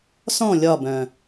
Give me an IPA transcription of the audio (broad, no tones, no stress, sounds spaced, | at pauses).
s ɔ̃ lʲ ɒ b œ̃